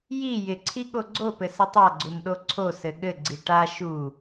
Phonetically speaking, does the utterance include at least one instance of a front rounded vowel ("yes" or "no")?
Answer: no